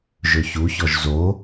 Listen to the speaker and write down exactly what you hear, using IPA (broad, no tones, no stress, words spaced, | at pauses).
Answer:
ʒɵçuçɔʒ zo